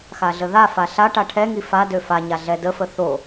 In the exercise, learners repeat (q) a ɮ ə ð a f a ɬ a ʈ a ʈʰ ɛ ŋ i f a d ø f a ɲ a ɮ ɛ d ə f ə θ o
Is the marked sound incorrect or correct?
incorrect